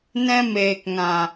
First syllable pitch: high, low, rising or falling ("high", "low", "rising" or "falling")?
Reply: high